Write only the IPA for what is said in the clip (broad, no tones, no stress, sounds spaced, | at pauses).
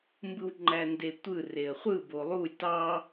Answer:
m b ɯ w ŋ͡ǃ æ n d e tʷ ɯ r e ə̯ χʷ ɯ b o lˠ u lʲ t ɑ